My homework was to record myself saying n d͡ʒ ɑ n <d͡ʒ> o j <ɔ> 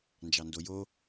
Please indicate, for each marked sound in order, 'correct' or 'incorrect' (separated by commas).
incorrect, incorrect